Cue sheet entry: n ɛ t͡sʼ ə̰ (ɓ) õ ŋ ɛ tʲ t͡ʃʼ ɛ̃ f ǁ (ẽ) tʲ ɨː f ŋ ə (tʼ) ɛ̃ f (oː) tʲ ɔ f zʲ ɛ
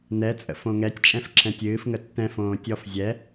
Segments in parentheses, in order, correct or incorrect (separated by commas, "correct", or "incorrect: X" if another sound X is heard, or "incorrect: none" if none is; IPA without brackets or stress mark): incorrect: f, incorrect: ɛ̃, incorrect: tː, incorrect: õː